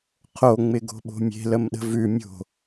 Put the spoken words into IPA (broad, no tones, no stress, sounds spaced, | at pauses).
qʰ o ŋ͡m ɪ ɡ o̤ ɓ o̤ mʲ e̤ l ə m ɗ ə̤ v ʉ mʲ o̤